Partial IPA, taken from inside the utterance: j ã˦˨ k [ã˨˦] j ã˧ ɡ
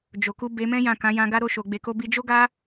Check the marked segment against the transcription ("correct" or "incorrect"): correct